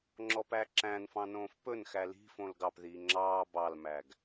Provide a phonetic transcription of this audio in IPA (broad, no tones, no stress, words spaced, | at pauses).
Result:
ŋ͡ǁɔpæǁæ̃nfɑ̃ nõːfpɵnxæ li̤ fõlɡɑpðiː ŋ͡ǁɑː bɑlmæɡ